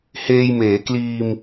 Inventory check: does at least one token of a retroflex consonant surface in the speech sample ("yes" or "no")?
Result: no